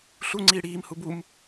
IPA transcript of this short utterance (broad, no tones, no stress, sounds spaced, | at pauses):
ɬ u ŋ͡ǀ iː ɽ iː m h u b u m